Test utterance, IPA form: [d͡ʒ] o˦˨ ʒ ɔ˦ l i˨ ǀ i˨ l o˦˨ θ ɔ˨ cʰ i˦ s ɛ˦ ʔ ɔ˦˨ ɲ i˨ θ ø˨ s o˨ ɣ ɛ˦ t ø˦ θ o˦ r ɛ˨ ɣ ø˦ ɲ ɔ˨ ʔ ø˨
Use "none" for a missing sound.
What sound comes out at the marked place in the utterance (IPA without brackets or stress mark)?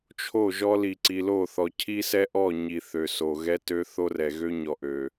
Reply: t͡ʃʰ